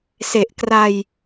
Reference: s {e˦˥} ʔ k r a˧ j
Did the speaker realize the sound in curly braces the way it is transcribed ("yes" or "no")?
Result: no